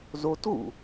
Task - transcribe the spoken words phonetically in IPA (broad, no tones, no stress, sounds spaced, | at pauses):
z o t ɣ ṵ